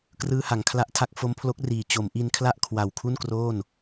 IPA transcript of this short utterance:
k r ɯː˧ h a˩˦ ŋ kʰ l a˦˥ ʔ tʰ a˦˥ k̚ f o˦˥ m pʰ l o˦˥ k̚ r iː˨˩ t͡ɕ o˩˦ m ʔ i˧ n kʰ l a˥˩ ʔ kʰ w a˨˩ w kʰ u˥˩ n k r oː˥˩ n

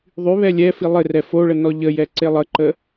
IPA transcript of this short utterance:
ðˤ y β ɛ lʲ ɛ f i lˠ ɪ r ɛ f o ɭ ə n ɔ ʎ ə j ɛ ǀ e lˠ ə ǃ ə

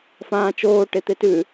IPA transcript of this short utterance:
f ãː t͡ʃ oː ʈ e t̪ e t ʉ

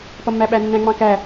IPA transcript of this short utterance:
p ʌ mː æ ɓ æ nː æ̃ ŋ͡m ɑ̃ k æ

